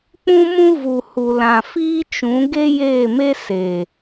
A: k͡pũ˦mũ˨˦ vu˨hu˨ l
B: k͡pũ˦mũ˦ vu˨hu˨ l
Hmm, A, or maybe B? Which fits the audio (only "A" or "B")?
B